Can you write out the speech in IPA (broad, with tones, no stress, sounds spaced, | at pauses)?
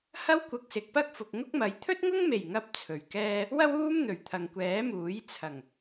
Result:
h ɐ˥ w kʷ ɐ˧ k̚ s ɪ˨ k̚ p ɐ˥ k̚ f ʊ˨ k̚ ŋ ʊ˥ k̚ m ɐ˨˧ j t̪ʰ ɵ˥ t̚ ŋ ʊ˥ ŋ m e˨˩ j ŋ ɐ˥ p̚ t͡sʰ ɵ˨ ɥ k ɛː˥ | w ɐ˥ w uː˥ m n̪ ɵ˨˩ ɥ t̪ʰ ɐ˨ ŋ kʷ ɛː˨˥ m uː˨˥ j t͡sʰ ɐ˨˩ ŋ